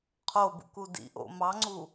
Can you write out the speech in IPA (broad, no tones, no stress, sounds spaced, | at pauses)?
qʰ o b ṵ k u d ḭ ʔ o̰ m ɑ ŋ͡ǀ u